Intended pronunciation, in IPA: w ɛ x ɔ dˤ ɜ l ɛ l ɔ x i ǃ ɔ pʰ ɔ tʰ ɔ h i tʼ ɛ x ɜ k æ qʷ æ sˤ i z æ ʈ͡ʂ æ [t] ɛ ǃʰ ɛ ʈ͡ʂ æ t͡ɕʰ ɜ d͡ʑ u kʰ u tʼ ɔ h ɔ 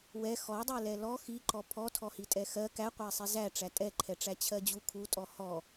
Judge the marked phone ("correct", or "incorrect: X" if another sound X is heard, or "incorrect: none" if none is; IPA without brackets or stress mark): incorrect: tʼ